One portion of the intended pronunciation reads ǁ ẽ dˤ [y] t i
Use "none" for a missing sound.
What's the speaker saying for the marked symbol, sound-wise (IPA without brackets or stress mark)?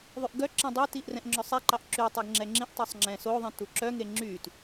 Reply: y